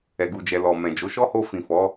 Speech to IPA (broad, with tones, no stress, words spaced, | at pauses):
ɛ˨ɡu˨d͡ʒɛ˨lɔ˨ mɛ̃˨d͡ʒo˨˦ ʃɔ˦ho˧fĩ˨ fɔ˨˦